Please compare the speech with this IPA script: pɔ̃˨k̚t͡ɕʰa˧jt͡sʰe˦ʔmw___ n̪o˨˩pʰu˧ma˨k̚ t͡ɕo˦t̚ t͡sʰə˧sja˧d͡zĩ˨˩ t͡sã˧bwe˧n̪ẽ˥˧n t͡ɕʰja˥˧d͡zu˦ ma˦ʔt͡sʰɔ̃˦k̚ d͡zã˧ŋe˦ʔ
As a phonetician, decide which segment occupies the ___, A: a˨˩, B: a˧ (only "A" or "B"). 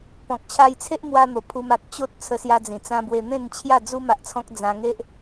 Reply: B